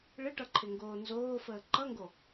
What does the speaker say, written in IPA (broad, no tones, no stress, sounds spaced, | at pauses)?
ɭ ɪ ʈ ʌ ǃʰ ɪ ŋ ɡ oː n z oː f əː ǃ ʌ ŋ ɡ o